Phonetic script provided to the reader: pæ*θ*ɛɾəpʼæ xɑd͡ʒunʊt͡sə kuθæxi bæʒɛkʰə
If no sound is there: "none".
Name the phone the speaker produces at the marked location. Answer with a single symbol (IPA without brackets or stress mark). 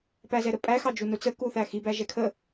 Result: z